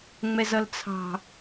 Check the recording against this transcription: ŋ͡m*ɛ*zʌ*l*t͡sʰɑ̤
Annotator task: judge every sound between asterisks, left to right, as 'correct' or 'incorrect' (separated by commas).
correct, correct